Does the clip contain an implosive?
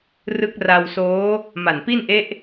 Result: no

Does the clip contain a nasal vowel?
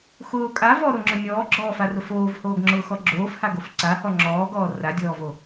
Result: no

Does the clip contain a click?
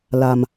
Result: no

